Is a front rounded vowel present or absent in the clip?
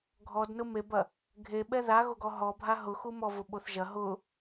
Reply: absent